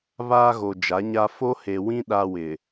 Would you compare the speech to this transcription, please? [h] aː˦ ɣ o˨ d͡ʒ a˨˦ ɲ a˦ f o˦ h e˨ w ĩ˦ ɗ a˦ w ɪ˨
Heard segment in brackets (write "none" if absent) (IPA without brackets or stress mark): β